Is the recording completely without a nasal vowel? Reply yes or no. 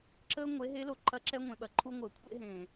no